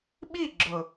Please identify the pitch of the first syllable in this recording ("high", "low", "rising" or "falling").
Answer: falling